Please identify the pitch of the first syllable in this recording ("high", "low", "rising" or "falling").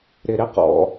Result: low